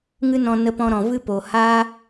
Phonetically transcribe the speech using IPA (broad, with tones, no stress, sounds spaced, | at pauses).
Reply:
ŋ ɨ˦ n ɔ̃˧ n ə˧ p ɔ̃˧ ɾ ɔ̃˨ v ɨ˦ p o˨ h a˦